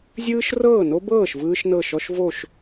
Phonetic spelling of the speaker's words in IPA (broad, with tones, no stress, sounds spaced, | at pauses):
zʲ ɯː˥ ʃ r ɤː˥˩ n o˥ b ɤː˥˩ ʃ v ɯː˥ ʃ n ɤ˥˩ ʃ ɔ˥ ʃ v o˥˩ ʃ